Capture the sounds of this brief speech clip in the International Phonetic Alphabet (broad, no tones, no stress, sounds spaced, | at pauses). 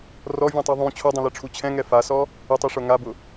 r ɔ vʲ ũ tˤ i ðˤ ũ t͡ɕʰ o dˤ ũ l e ʈ͡ʂʰ u t͡ɕʰ ɛ̃ ŋ ɛ f a s ɔ | ɪ tˤ i ʂ o ŋ a b ʊ